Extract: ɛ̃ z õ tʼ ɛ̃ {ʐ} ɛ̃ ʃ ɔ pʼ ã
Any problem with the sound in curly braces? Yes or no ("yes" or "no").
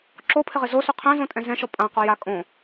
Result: yes